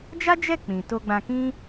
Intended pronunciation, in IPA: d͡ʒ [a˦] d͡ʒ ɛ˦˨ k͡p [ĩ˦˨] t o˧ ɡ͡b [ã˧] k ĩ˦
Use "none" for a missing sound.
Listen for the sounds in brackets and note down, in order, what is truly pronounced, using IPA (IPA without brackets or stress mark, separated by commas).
a˦, ĩ˨, ã˧